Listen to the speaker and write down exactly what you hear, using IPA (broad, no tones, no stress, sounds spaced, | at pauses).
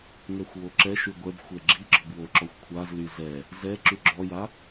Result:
ŋ ɛ xʷ w o ǁ ɛ ʃ y ɡʷ ɛ b xʷ ɛ ɡ͡ǁ i ɡ͡ǁ ɔ b w o ǁ ɔ xʷ kʷʰ a z l y z ɛ | z ɛ ǁ y ɡ͡ǁ ɔ j a